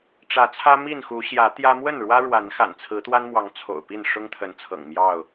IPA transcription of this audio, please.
ʈ͡ʂ ä˨˦ t͡sʰ ä˦ m i˥˨ n x u˨˦ ɕ j ä˨˦ t̪ j ä˦ m w ə˥˨ n ɻ w ä˦ ɻ w a˨˦ n x a̰˨˩ n t͡sʰ ɹ̩˨˦ t̪ w a˦ n m w ɑ˨˦ ŋ t͡sʰ o̰˨˩ ʊ̯ p i˥˨ n ʂ ʊ˦ ŋ t̪ʰ ə˨˦ n t͡sʰ ɤ̰˨˩ ŋ m j ɑ˥˨ ʊ̯

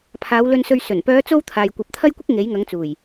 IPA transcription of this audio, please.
pʰ aː˨˧ w l ɵ˧ n s ɵ˧ ɥ s ɵ˨˩ n p œː˨˧ t͡s o˧ w t̪ʰ aː˨ j kʷ ɐ˨˥ p̚ t̪ʰ ɐ˥ j kʷ ɪ˥ k̚ ŋ e˨˥ j ŋ ɐ˨˥ ŋ t͡s uː˨˩ j

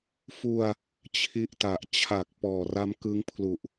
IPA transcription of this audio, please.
f u˧ a̯ | t͡ɕʰ i˦˥ ʔ t a˨˩ ʔ t͡ɕʰ a˨˩ k̚ p ɔː˨˩ r a˦˥ m k ɯ˦˥ ŋ pʰ l u˨˩ ʔ

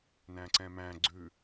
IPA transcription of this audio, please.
n æ̃ ǀ ɛ̃ m æ̃ ɡ͡ǀ ʉ

